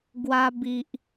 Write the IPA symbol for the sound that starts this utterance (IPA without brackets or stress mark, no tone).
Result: ɡ